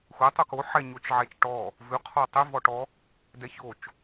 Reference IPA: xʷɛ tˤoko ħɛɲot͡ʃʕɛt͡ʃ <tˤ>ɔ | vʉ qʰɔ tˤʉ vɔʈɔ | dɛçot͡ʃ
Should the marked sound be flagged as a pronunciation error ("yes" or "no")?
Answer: yes